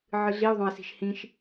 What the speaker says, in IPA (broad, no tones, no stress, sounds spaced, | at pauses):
ʕ ɨ ɮ i o̯ ðˤ õ e̯ s i̤ ʃ h ĩ ʃ